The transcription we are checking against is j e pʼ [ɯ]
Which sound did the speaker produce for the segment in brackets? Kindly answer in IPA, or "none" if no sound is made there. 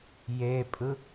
ɯ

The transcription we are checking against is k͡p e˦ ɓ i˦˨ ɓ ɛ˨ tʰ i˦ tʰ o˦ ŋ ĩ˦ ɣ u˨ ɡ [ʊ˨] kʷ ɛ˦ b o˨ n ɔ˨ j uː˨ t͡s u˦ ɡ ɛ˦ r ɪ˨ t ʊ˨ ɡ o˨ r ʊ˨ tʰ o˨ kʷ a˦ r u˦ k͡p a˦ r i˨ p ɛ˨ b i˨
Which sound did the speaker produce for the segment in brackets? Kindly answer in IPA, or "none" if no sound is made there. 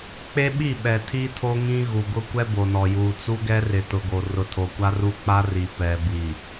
ʊ˦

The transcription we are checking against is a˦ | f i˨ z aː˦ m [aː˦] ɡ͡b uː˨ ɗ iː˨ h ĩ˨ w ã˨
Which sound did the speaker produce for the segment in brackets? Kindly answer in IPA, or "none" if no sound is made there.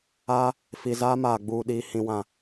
aː˨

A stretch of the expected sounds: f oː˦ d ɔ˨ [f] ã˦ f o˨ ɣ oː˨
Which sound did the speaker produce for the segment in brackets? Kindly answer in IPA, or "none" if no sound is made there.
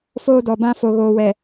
b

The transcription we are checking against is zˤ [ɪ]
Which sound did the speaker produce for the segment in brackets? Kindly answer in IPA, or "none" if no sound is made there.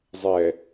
ɛ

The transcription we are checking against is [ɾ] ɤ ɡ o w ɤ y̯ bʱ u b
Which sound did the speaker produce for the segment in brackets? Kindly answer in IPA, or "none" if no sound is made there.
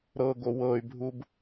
ɾ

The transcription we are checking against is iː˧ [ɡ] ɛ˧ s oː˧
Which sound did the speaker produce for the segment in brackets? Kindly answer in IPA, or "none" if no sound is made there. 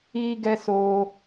ɡ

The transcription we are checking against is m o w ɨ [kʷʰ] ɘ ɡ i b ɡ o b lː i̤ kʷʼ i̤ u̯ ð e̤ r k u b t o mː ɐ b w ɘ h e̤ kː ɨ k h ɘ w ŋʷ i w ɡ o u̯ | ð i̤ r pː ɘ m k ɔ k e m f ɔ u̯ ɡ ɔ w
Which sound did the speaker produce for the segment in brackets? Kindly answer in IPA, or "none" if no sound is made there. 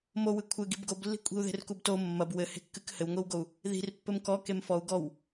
kʷʰ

